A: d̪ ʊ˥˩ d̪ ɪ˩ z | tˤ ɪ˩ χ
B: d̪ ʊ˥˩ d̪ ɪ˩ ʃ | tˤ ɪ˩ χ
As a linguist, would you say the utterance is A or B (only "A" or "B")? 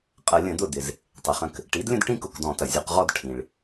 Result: A